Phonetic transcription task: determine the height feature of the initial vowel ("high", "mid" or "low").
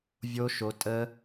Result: mid